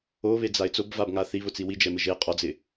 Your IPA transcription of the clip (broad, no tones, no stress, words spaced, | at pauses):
oβed͡zaɪ̯ t͡sobvabŋa θiβʊt͡si wid͡ʒɛmɪ ʒe qʼɔd͡zɪ